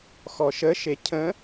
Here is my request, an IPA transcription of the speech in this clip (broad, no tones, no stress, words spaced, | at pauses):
xɔʃə ʃecʰə̃